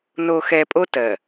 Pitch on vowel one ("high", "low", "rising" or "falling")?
low